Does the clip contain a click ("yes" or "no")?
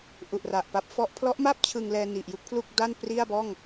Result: no